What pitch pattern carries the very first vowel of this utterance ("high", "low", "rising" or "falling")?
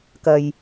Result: low